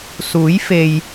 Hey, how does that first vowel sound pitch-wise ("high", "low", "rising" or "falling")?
rising